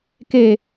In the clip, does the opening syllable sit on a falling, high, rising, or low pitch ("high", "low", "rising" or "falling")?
falling